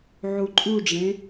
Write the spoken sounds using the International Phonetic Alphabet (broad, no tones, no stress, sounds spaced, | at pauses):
ʕ u ǃʼ u ɖ͡ʐ ẽ